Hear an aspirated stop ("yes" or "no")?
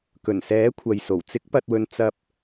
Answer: yes